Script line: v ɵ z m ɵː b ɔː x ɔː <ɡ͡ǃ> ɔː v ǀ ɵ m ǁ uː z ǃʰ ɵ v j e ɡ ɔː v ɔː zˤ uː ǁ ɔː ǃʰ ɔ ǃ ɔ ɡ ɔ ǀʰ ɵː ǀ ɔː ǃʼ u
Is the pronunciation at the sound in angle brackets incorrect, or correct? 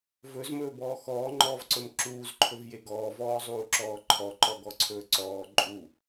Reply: incorrect